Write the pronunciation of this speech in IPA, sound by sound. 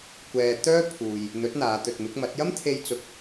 kʷ ɛː˧ t̪ œː˥ pʰ uː˨ j | n̪ ɵ˨˥ t̚ n̪ aː˨˧ t̪ ɵ˨ t̚ m ɪ˨˥ k̚ m ɐ˨˥ t̚ j ɐ˥ m t̪ʰ e˧ j t͡s ʊ˧ k̚

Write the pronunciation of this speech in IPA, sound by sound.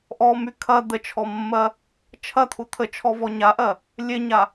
ʔ ɔ m y kʰ ɐ d̪ ə t͡ʃʰ ɔ mː ɜ | t͡ʃʰ ɐ t̪ʰ u t̪ʰ ə t͡ʃʰ ɔ v ɔ ɲ a ʔ ɜ | lʲ e ɲ a

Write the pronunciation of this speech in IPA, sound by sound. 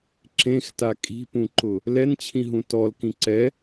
ǁ ẽ x t a kʼ i̤ p ũ ǃ ʊ | l ɛ n t͡ɕʰ ĩ ɦ ũ t ɔ l k ĩ ǀ ɛ

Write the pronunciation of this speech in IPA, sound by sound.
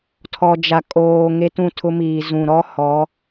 tʰ ɔ˨ d͡ʒ a˨ kʼ oː˨ ŋ e˦ t ũ˦˨ tʰ ʊ˦ m iː˨ z ũ˨ ɾ ɔ˦ h ɔ˨˦

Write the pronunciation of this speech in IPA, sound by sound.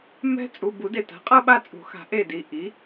m ɛ̤˦ t͡sʼ u˩˧˩ b u˨˩˦ d e˩ t a̤˩˥ qʼ ɤ˦ ɓ a˦˨ t͡sʼ ṳ˨˩˦ x a̤˩˥ ʔ e˦˨ d i˩˧˩ ʔ i˩˥

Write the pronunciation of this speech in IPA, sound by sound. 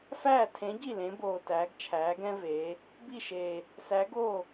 f æː˥˩ tʰ ẽ˨˥ ɟ i˥˩ l ẽ˨˥ b oː˨˩ t æː˩˧ ɡ t͡ʃʰ æː˩˧ ɡ ɛ̃˦ v eː˩˧ | b i˥˩ ʃ eː˨˩ | s æ˨˥ ɡ oː˥˩

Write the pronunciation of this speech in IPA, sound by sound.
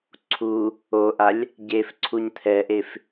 ǀʰ u | o ʔ a lʲ | ɟ e f ǀʰ u ɲ t̪ʰ ɛ ʔ e f

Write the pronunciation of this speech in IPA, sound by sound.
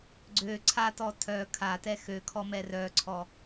ɡ͡ǀ ø ǀʰ a t ɔ tʰ œ kʰ a t ɛ x ø kʰ ɔ m ɛ r œ ǀʰ ɔ

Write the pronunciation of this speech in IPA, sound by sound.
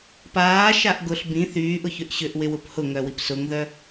p aː ʃ a ʔ ɡ ʊ ɬ b ĩ θ yː ʔ ʊ ç ʏ ʔ ɕ ʏ ʔ w ɪ w ʊ p h ʊ ŋ œ w i p s ʊ ŋ ð œ

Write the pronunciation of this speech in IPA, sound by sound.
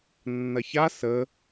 nː ɐ ç a s ə

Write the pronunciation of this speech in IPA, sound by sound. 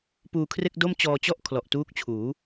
p uː˧ kʰ r e˥˩ k̚ d o˥˩ m t͡ɕ ɔː˧ t͡ɕ ɔ˥˩ ʔ kʰ l ɔ˨˩ ʔ t uː˦˥ k̚ t͡ɕʰ uː˩˦

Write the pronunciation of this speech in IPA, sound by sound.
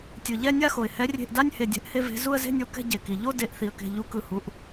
tʲ ɯ˩ ʎ ɛ˥˧ nʲ a˥˧ x o˩ ɪ̯ h ɛ˨˦ rʲ e̤˧˩ ʔ d a˥˧ nʲ h e˧˩ dʲ ɛ̤˨˦ ʔ h e˥˧ v e̤˨˦ z u˥˧ ə̯ z e̤˥˧ nʲ o˨˦ k ɛ̤˥˧ ɟ e˩ k i˩ ʎ o˥˧ d e˨˦ ʔ θ i˩ ə̯ k e̤˧˩ ʎ u˧˩ k ɯ˩ h u˨˦ ʔ

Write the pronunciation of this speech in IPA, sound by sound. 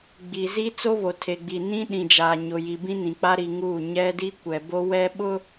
ɡ͡b i˨ z i˦ t͡s o˦ β o˨ tʰ e˨ ɡ͡b i˨ n ĩ˦ ɗ ĩ˨ d͡ʒ aː˨ ɲ ʊ˨ j i˨ b ĩ˦ n ĩ˨ k͡p a˦ ɾ i˨ ŋ uː˦˨ ɲ ɛ˦ d i˦ kʷ ɛ˨ b o˦ w ɛ˦ ɓ ʊ˦

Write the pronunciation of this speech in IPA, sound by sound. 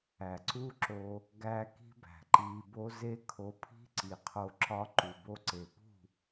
æ˨ ǀ u˦ ǁ o˧ | ɡ æ˧ k i̤˦ b æ̤˨ ǃ iː˧ b o˦ z e˧ kʰ o˧ pʰ i̤˦ ǀ i˨ qʰ o˧ ǁ ɒ˧ ǃ u˨ b o˧ ǀ e˨ p ṳ˦˨

